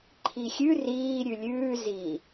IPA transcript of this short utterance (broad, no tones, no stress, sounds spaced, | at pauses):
ǃʰ i xʲ ʉ r iː ɾʲ ʉ lʲ ʉː z i